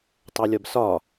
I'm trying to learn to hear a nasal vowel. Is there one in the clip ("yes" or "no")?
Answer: no